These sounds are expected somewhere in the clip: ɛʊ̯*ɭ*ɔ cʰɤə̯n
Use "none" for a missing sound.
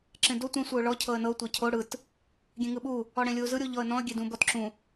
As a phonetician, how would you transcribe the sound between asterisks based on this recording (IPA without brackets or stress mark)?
ɭ